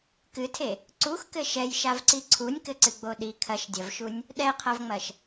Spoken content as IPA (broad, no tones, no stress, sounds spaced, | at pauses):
k ɨ tʰ e | ǀ u x k ɘ ʃ ɛ j ʃ a v ǀ i ǀʰ u nʲ k ɘ ǀ ɨ ɡ͡b o ɗ i kʰ ɐ ʃ dʲ ɐ v ʃ u nʲ | ɗ ɛ qʰ ɐ v ŋ͡m ɐ ʃ